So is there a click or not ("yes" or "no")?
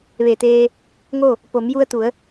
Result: no